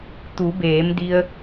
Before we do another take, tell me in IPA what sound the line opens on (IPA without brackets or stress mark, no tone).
t̪